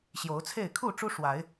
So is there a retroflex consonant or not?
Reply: yes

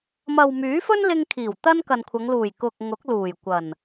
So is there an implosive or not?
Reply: no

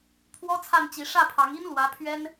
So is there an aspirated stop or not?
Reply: yes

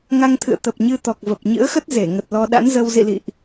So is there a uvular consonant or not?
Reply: no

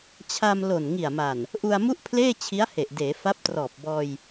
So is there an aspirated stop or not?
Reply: yes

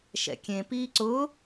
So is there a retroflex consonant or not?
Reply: no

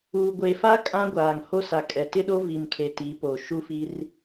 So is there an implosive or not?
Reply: yes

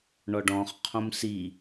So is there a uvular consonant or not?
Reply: yes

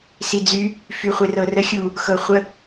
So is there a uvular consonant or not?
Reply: yes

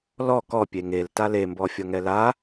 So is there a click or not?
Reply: no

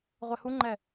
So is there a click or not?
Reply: yes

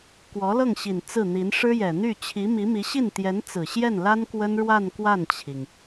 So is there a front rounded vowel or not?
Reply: yes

